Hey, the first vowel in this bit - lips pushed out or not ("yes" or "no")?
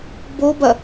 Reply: yes